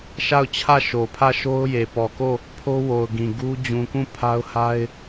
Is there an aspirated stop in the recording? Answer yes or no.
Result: yes